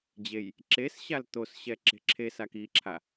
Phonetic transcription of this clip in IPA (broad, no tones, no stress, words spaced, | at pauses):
d͡ʑej | ǁesɕal t̪osɕɛ ǁe̤ǁʰesak iǁʰa